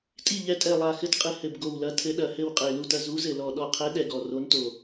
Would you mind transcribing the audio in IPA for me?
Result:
tʼi˦˨ ʎɛ˨˦tʼɛ˨˩lˠa˨˩ xɘ˨˦tqʼɨ˨˩ hɘ˨˩b ɡo˨˩wlɐ˨˦tʰɘ˨˦ɗɐ˨˩ hɘ˦˨wqʼe˨˩lu˦˨tɐ˦˨ zu˨˦zɘ˨˩lɔ˨˩ ɗɔ˨˩qʰɛ˨˦ɗɛ˨˩ ɡɔ˨˩ro˨˦nto˨˩

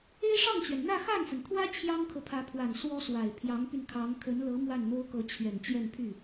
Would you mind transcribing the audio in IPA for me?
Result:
e˥ɪ̯ʂɑ˥˩ŋt͡ɕɥɛ˩n n̪ä˥˧xa˥˩nfə˩nt̪ʰwä˥ t͡ɕʰjɑ˥ŋkʰɤ˨pʰä˧˥pʰwa˨˩n swɔ˥swa˨˩ɪ̯ pʰjɑ˧˥ŋpy˧nkʰɑ˧˥ŋ kʰə˧˥nlɤ˧˥ mwa˥˩nn̪o˥ʊ̯kɤ˧˥ t͡ɕʰɥɛ˨˩nt͡ɕjɛ˥˧npʰy˥˩

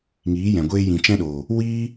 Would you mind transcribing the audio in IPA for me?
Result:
ŋiː˨˦jɛ̃˨ɡʷeː˧ jĩ˨t͡ʃɛ̃˦ɗoː˨ | wiː˦

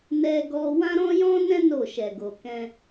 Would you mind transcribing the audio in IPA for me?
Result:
nɛ˧ɡɔ˧ wã˦ɾɔ̃˦jɔ̃˦nɛ̃˦ no˦˨ʃɛ˨ɡo˨ kɛ̃˧

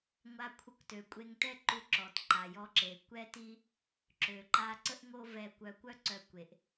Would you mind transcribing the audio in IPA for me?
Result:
ŋʷa˧kʷʰə˧kʷtø˩ kʷʼe˧ŋtɛ˥ǃu˧ ǁɔ˩tǃa˩jɔ˧ǁe˩ kʷɛ˥ti˥ | ǁø˩ǃa˧ ǀə˥ʔŋo˥vɛ˧kʷœ˧ kʷœ˥ǀœ˧kʷe˩ʔ

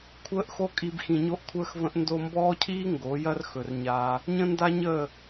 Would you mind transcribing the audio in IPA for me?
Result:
kʷʰəː˦ʔxo˦kʼi˧b xĩ˧ɲo˦ʔkʷʰəː˦xvə̃˦ʔ ndo˧mbɔː˦cʰiː˦ ŋɡo˨˦jɐ˦r xɵ˨rɲaː˧ | ɲə̃˦nda˦ɲəː˦˨

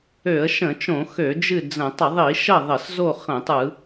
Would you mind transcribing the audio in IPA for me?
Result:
ø˧˩˧ə̯ ʃə̃˧˩˧t͡ʃõ˧˩˧xø˧˩˧ d͡ʒɨ˥˨d͡zə̃˧˩˧ tˤə˧˩˧ðˤi˧˩˧ ʃə˥˨ðˤə˧˩˧s zo˥˨χə̃˧˩˧tˤɯ˧˩˧

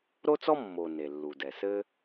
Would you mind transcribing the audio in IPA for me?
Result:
ɾo˥t͡sɔ˥ mːo˩ ne˩lːu˩dɛ˩sɘ˥

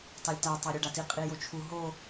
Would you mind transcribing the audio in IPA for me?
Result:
tɑlʲta tˤɑɾʲuɖati qʼijot͡ʃʰu ɦo

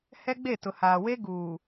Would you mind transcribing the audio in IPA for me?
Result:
hɛ˦ɡ͡be˦˨ tʊ˨haː˨we˦ ɡuː˨

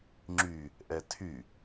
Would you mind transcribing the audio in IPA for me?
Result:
ŋ͡ǁy | ʔɛtʰy

